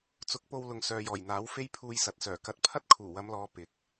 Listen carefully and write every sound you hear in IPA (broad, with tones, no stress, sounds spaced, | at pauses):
t͡s ʊ˨˥ k̚ p o˧ w l ʊ˨ ŋ s œː˨ j ɔː˨˩ j n̪ aː˨˥ w f e˥ j pʰ uː˧ j s ɐ˨ t̚ s œː˨˩ k ɐ˧ t̚ pʰ ɐ˥ t̚ kʰ uː˨˩ w ɐ˨˧ m l ɔː˨˧ p ɪ˨˥ k̚